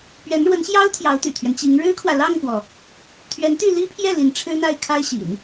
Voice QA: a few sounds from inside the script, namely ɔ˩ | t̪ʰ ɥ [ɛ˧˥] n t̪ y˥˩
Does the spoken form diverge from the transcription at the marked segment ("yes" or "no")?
no